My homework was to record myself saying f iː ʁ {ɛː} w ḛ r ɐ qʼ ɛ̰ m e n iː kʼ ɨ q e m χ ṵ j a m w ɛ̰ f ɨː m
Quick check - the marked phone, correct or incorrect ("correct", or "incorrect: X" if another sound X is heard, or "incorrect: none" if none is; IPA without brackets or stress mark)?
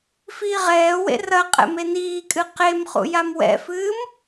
correct